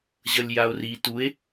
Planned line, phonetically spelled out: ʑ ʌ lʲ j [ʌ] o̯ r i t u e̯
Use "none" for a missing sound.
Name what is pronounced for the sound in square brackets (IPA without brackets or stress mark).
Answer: a